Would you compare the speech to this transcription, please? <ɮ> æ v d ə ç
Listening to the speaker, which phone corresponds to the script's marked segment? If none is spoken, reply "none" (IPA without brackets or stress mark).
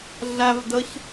ɮ